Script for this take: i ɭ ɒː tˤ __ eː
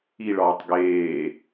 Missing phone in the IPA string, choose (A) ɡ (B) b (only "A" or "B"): A